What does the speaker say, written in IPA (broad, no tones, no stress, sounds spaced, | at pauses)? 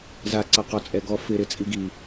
z a ǀ a q ɔ t͡sʼ ɛ ɡ ɔ f ɪ ɾ ɪ t͡sʼ i ɡ i